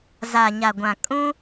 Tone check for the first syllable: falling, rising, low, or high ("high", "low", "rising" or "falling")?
low